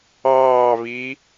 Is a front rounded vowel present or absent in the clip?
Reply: absent